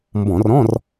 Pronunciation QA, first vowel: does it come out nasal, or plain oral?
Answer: nasal